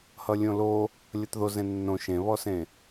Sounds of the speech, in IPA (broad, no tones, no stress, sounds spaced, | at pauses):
h ʌ lʲ õ l o | lʲ ʌ t ð o z ẽ nː õ ʃ ẽ β ɔ s ẽ